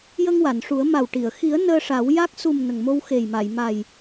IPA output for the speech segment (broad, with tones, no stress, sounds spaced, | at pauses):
j ə˧ ŋ w a˨˩˨ n ʂ u˨˩˦ ə̯ m a˨˩ w ʈ i˨˩˨ ə̯ x i˨˩˦ ə̯ n əː˧ ʂ a˨˩˦ w j a˦˥ k̚ s u˨˩ m n ə˨˩ ŋ m o˧ w x e˨˩ j m a˨˩˨ j m a˨˩ j